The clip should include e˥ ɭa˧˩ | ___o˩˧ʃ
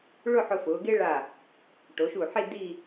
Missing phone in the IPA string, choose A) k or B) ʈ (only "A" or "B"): B